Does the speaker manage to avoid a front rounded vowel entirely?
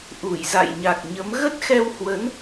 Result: yes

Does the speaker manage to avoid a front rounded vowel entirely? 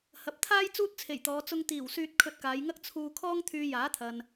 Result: no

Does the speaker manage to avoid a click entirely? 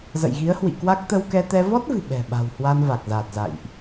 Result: yes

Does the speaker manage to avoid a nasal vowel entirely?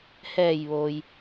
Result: yes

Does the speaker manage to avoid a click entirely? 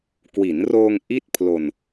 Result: yes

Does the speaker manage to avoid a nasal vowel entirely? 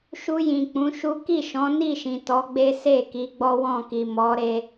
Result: no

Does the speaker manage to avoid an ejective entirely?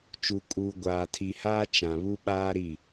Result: no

